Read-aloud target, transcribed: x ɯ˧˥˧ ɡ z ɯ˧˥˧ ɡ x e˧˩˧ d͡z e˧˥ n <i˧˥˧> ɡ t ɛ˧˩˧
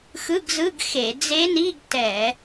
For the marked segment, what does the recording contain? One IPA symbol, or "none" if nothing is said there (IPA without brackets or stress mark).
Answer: i˧˥˧